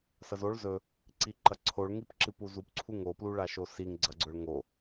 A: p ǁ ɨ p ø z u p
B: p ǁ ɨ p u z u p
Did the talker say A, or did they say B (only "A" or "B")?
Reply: B